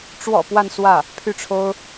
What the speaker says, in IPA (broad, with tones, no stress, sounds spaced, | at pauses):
ʈ͡ʂ w ɔ̰˨˩ p w a˥˧ n s w ä˥˩ | pʰ y˥˩ ʈ͡ʂʰ o˥ ʊ̯